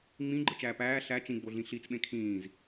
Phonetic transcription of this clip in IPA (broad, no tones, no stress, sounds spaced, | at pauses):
ŋ͡m ĩ ɡ͡ǃ ɯ t͡ʃ æː p æː ɬ æ t͡ʃ ĩ ɡ͡b o ɮ ĩ ɬ i t͡s ɓ ẽ kʰ ĩː z